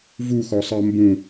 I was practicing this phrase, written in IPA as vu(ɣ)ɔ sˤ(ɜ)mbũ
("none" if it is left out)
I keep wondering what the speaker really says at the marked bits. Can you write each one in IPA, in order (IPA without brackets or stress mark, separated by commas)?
x, ɜ